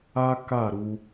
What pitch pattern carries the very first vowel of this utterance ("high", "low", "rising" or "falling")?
high